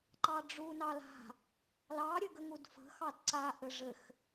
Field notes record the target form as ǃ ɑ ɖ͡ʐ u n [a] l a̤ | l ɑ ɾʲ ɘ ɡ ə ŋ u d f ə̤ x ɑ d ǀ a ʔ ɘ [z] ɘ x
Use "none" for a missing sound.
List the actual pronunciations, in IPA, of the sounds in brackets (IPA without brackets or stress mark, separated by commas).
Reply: ɑ, ʐ